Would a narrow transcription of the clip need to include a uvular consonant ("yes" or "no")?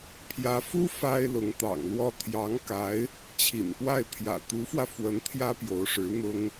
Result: no